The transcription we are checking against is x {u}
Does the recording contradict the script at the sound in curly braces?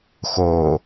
yes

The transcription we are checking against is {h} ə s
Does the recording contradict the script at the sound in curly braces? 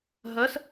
yes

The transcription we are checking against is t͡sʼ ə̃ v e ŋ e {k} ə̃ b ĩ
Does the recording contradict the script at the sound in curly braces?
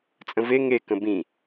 no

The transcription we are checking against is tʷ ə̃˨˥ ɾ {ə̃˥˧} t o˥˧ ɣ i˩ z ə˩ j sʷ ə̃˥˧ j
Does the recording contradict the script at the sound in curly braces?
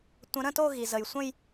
no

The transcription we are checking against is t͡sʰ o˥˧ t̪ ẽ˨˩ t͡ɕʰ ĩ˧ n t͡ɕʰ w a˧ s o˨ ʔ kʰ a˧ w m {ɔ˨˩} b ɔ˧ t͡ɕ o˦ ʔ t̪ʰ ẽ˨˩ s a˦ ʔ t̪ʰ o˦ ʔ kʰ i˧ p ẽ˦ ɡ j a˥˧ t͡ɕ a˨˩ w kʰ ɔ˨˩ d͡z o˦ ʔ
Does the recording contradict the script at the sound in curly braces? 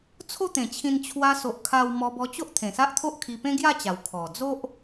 yes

